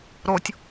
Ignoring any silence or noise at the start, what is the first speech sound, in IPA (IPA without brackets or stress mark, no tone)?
ɾ